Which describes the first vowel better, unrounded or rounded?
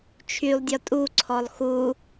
rounded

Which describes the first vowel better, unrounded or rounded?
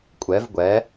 unrounded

